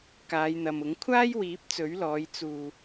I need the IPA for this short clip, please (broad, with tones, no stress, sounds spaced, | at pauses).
k aː˨˧ j n̪ ɐ˨ m ʊ˨˥ ŋ kʷʰ aː˥ j w iː˨˥ p̚ t͡s ɵ˨˥ ɥ l ɔː˨˧ j t͡s uː˧